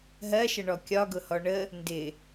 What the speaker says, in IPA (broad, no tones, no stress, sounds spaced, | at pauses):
ɦ ɜ ʃ ə ɳ ɔ kʲ ɒ ɡ ʊ h ɔ ɳ ə | n d ɪ